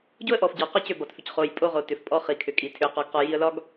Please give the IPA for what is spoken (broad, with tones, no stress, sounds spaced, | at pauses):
ɟ o˦ ə̯ ʔ ɔ˨ f ɟ ɒ˨ q ɒ˦ c ʏ˨ b ɒ˨ t f ʏ˨ c χ o˨ j pʼ o˦ ʁ o˨ t ʏ˨ f pʼ ɔ˦ χ i˨ kʰ ʏ˨ kʼ i˨ tʰ ʏ˨ ə̯ q ɔ˨ ɡ q ɔ˨ j i˨ ə̯ l ɒ˦ ɡ